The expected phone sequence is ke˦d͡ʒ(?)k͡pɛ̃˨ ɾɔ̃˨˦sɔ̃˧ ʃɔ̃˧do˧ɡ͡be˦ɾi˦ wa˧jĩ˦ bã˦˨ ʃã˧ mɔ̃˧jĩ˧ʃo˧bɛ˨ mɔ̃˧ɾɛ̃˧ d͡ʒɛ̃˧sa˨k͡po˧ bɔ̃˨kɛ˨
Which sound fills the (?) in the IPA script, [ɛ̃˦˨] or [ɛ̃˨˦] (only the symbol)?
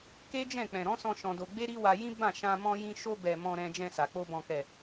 ɛ̃˦˨